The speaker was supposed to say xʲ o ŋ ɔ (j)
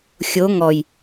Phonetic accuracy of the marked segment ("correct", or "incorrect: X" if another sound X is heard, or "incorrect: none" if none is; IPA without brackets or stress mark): correct